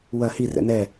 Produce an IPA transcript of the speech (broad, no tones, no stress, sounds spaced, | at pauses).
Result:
w ɐ h i r ɛ̰ n ɛ